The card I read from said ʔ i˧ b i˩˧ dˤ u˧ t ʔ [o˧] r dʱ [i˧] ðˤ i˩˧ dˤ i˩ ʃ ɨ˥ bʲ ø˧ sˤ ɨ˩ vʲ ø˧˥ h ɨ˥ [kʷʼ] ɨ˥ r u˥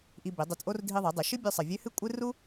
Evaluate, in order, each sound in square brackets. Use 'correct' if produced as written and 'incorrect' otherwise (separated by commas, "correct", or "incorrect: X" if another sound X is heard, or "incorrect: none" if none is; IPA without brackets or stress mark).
incorrect: o˥, correct, correct